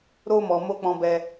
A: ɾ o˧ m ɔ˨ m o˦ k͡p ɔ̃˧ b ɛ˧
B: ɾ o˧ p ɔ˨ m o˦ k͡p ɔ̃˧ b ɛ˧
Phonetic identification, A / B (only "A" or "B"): A